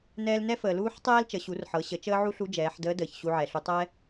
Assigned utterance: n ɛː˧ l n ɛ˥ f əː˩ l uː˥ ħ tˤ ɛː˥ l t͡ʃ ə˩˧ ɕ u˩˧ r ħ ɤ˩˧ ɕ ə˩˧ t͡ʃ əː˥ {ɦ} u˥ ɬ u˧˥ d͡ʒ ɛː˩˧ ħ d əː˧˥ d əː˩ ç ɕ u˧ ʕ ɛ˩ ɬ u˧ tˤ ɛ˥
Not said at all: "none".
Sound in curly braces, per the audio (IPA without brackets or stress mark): ʕ